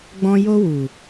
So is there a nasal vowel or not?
yes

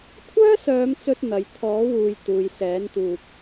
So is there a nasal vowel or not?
no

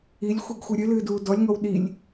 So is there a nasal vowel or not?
no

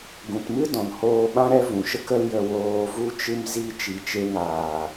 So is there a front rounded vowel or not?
no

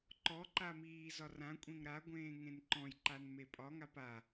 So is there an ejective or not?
yes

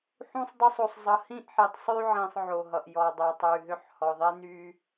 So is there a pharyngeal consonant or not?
yes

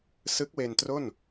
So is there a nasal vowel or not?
no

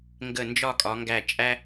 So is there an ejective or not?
yes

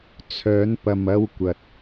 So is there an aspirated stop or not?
yes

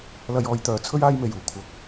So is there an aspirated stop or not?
yes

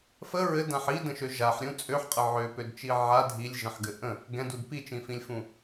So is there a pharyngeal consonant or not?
yes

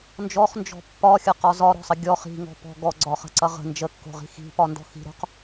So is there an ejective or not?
no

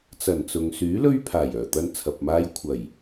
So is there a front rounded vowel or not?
yes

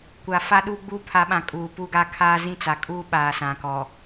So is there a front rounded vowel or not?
no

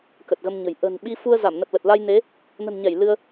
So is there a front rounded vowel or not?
no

